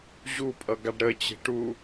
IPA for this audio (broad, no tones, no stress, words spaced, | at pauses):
ʑupʼʌ ɡaɖɾət͡ɕe̤ ʈu